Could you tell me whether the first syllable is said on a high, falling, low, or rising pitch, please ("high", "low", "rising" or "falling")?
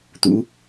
rising